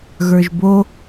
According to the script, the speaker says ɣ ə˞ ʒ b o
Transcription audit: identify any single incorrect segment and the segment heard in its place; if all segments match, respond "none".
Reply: none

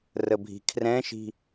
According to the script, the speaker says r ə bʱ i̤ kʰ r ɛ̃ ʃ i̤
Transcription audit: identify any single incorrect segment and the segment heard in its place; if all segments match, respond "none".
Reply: none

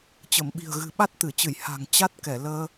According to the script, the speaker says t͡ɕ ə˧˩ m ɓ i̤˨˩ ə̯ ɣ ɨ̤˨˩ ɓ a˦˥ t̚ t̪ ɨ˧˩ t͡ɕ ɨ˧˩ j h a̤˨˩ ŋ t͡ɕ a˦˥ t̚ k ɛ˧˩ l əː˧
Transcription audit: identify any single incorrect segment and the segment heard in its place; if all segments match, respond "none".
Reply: none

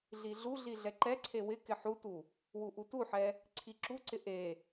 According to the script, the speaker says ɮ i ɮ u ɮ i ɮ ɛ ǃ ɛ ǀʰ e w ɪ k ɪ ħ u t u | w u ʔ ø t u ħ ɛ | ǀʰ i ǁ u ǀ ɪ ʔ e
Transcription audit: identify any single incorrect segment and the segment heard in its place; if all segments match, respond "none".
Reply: ø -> u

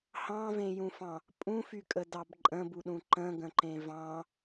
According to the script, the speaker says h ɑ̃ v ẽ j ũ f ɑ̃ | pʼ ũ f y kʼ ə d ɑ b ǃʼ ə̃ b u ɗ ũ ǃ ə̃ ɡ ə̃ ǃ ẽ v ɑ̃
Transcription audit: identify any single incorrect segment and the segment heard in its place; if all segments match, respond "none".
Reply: none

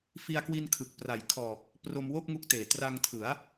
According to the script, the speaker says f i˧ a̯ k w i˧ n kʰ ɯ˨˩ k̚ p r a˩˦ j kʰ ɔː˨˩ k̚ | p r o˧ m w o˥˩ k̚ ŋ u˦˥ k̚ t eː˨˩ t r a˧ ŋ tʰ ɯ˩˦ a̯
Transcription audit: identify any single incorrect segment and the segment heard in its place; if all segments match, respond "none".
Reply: none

